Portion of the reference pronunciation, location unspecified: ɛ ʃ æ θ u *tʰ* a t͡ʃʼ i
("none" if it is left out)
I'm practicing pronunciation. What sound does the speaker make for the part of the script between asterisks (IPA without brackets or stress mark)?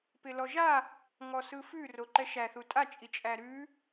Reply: tʼ